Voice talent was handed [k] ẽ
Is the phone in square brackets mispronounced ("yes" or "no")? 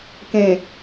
no